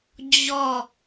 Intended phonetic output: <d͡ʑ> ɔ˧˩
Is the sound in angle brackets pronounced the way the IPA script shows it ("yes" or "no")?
yes